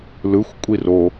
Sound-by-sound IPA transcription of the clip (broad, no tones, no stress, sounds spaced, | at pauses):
l ɯ xʷ kʷʼ i r o